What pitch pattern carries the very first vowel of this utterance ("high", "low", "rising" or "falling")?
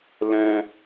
high